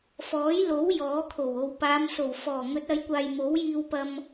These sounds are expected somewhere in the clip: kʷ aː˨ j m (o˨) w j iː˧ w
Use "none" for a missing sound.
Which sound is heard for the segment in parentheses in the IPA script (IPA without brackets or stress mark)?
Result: o˨˥